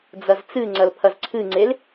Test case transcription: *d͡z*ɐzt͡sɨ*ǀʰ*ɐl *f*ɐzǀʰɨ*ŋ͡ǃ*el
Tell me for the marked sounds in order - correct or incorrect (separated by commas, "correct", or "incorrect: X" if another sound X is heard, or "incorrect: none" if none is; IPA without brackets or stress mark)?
correct, incorrect: ŋ͡ǀ, incorrect: pʰ, incorrect: ŋ͡ǀ